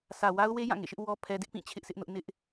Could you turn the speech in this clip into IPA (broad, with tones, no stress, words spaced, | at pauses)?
sä˨ wa˦ʊ̯we˦ jã˦˨ŋḛ˦˨ʃɪ˦ʔ wɔ˦ pʰɛ˦ dɪ˦ʔpĩ˦˨ t͡ɕʰɪ˦ʔsʰɪ˦ʔnʊ˦ʔ nɪ˦ʔ